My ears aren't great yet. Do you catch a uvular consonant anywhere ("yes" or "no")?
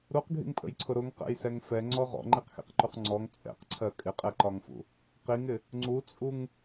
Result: yes